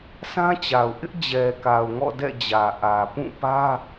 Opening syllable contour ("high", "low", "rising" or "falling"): high